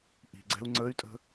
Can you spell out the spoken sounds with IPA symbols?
ʔi̤ɡ͡ǀɛ̤u̯ ŋ͡ǀəy̯tʼə̤

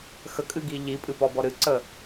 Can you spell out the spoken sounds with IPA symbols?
xəkʼɨɡi ʎipʼɨpɔbɔ ɾɨǀə

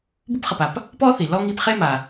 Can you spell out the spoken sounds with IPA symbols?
bu˥pχɐ˨p a˨p | pɔ˦θi˩ lɔ˦ŋi˦pχe˥ma˩

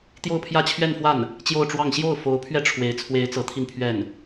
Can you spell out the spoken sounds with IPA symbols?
t̪jo˥˧ʊ̯pʰjä˥˧ t͡ɕʰɥɛ˥˧nfwa˥˩n | t͡ɕjo˥˧ʊ̯ʈ͡ʂwɑ˥˧ŋ ɕjo˥˩ʊ̯fo˧˥ʊ̯pʰɥɛ˥˩ ʈ͡ʂʰwe˧˥ɪ̯ t͡sʰwe˧˥ɪ̯ t͡sɤ˧˥ t̪ʰi˥˧npʰɥɛ˥˩n

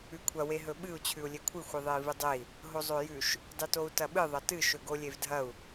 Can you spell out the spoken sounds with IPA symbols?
ʉkʷʰɐ weɦɵɓɨu̯ t͡ɕʰʉu̯lʲekʷʰɨ xʷɨðˤei̯vɨdˤei̯ | ɦozˤojʉʃ | dˤɨtou̯tɐɓɨ ðˤɐtɨ ʃɵɡolʲevdʱɐu̯

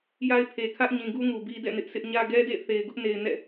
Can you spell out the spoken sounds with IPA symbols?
ja˦ɪ̯ pʰe˨kʰä˦ʔɲĩ˨ɡu˦ ŋu˨bi˦dɛ̰˦˨ nɪ˦ʔ sʰɪ˦ʔɲä˦ ɡɛ˦dḛ˦˨θe˨ɪ̯ɡʊ˦ʔ ne˨ɪ̯ nɛ̰˦˨

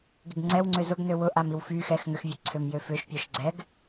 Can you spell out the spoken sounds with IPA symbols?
ɡɪɡŋ͡ǀɛw ŋ͡ǀʏzʊɡnø wʊ ʔamiwfy xɛx ŋʏxvʲɛ ǀʰømjøfʏʃ pʲɔʃɡ͡ǀɛɡ

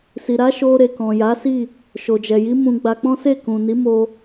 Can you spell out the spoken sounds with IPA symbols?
si˨ɾa˨˦ʃo˧ɾe˨ kɔ̃˨ja˨˦si˦˨ | ʃo˨d͡ʒɛ˨ji˨˦ mũ˧ɡ͡ba˧k͡pɔ̃˦ se˦˨kũ˨ni˨˦mo˧

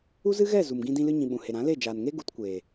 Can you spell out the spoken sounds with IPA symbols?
u˦zɨ˦ɣɛ˦˨ zu˨m ɡĩ˧dĩ˧lɨ˧ɲĩ˨ ɓũ˨he˨ɾã˨˦le˦˨ d͡ʒaː˨nŋe˦ ɡu˨˦tkʷeː˨

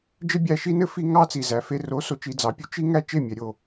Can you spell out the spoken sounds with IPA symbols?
d͡ʒɘ˦bʲæ˧ʃi˦ nɘ˦fi˧ ŋɑ˦t͡si˨zæ˨fe˧ ro˨˦ so˨t͡ʃi˧d͡zɑ˨˦pʲu˧ t͡ʃi˦ŋæ˦ t͡ʃe˦˨mʲɛ˨ɾʲo˦˨

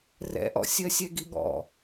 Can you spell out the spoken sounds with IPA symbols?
rɛ̰ʔɔ̰sʲɜ sʲɛɡiɠɔ̰

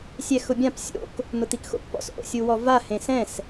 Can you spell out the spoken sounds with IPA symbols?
sʲɛxʊbʲãp sʲo̰k | n̪ʊt̪ikxo̰kpɔ̰s ʔo̰sʲuwɔva hẽsɛ̃s

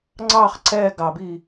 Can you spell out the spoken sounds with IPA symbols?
ŋ͡ǀɑχ ǀɛ ɡɑbi

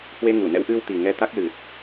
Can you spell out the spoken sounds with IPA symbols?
hwe˧ŋu˧˩nɛ̰˧˥w ʔɨ˧wt̪i˨˩ŋɛ˧ t̪a˦˥k̚lɨ˨˩t̚

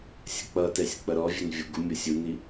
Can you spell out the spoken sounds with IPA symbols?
sʲək͡pʌtɛsʲ k͡pʌɾɔvʲɛn vʲoɡumʲosʲ uni

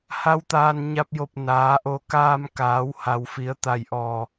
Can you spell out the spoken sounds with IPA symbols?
ha˧˥wt̪aː˧nɲa˧p̚jo˧˩p̚ naː˩˧ʔo˧˩kaː˧mkaː˩˧w ha˩wfi˩˧ə̯t̪a˧˩jʔɔː˧˩

